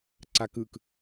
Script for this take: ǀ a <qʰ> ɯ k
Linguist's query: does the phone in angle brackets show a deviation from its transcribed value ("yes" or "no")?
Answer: yes